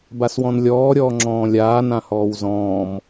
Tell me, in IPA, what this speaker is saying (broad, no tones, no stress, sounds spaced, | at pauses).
b a s w ɔ̃ n lʲ ɔː ɾʲ ɔː ŋ͡ǁ ɔ̃ː lʲ aː n ã h ɔː w z ɔ̃ː m